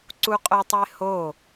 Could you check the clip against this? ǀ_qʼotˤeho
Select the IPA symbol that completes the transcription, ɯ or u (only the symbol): u